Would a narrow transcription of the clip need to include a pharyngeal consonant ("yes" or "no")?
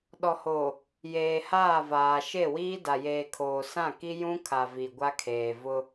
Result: no